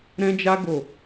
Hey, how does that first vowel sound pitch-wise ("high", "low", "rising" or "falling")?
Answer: high